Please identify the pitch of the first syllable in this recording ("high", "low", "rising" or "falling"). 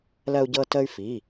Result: high